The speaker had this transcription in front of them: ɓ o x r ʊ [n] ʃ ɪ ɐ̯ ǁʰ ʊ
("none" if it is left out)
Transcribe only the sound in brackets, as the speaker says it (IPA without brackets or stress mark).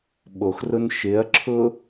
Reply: n